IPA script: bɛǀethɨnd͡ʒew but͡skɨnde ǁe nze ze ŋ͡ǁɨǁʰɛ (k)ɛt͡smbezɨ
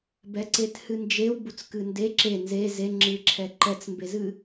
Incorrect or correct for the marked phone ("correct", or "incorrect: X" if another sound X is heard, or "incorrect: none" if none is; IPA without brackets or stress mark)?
incorrect: ǃ